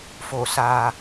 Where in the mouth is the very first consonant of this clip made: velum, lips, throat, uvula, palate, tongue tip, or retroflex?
lips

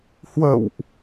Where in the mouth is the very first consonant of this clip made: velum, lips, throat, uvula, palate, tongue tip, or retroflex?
throat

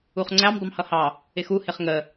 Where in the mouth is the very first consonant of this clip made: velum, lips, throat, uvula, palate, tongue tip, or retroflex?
uvula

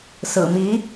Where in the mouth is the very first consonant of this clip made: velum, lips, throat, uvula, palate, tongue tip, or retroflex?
tongue tip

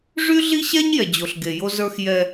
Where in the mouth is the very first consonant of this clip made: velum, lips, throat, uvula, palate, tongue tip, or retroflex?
retroflex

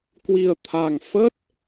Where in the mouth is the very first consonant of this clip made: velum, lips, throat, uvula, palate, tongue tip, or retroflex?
velum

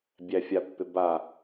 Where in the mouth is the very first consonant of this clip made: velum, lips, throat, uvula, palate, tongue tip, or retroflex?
lips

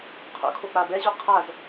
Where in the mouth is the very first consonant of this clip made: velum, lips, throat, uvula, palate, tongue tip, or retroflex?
uvula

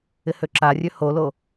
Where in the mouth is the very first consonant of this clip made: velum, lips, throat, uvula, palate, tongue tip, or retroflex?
throat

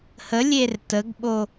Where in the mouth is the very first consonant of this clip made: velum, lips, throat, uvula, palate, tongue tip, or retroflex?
throat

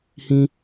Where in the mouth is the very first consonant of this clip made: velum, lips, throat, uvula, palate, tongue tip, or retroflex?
throat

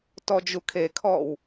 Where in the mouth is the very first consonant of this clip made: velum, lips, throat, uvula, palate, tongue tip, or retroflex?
tongue tip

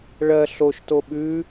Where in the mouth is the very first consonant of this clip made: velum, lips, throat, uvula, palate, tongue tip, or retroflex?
retroflex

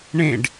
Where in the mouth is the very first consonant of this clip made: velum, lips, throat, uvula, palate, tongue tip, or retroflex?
retroflex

